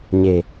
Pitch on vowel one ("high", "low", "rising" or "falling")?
low